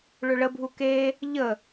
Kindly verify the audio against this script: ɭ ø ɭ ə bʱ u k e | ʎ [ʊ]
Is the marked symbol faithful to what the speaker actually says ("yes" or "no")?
no